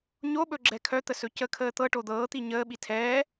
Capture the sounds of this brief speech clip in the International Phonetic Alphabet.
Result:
ɲ o ɓ ɵ ɡ͡ǁ ɛ kʰ œ t̪ ə s ɵ c ə kʰ əː t̪ ɤ ʈ o d̪ ɤː t̪ i ɲ əː ɓ i tʰ ɛː

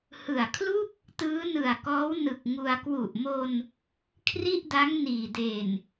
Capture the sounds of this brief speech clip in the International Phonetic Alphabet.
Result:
h ɯ˨˩ a̯ kʰ l u˥˩ k̚ | t ɯː˦˥ n ɯ˨˩ a̯ k ɔː˦˥ w n ɯ˨˩ k̚ ŋ u˧ a̯ k w u˨˩ ʔ m o˧ n | kʰ r i˥˩ ʔ d a˦˥ ŋ n iː˨˩ d e˨˩ n

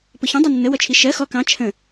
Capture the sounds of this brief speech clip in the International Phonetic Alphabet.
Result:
p ʊ ç ə̃ dˤ u nː ə w ʌ t͡ʃʰ i ʃ ɜ x ɔ k ɑ̃ t͡ʃʰ ə̃

